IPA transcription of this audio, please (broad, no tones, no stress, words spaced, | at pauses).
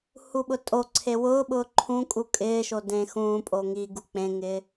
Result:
huɓʊtʼoǀʰe wʊːɓʊː ǃʰũkʼu kʼɪːʃo dẽ xũːpʼo ŋiɡu k͡pẽŋɪː